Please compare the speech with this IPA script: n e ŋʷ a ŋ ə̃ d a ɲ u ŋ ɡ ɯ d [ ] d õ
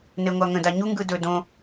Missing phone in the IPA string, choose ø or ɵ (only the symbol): ɵ